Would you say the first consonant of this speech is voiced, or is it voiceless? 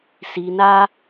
voiceless